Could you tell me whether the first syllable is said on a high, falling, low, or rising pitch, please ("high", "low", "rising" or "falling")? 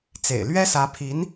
low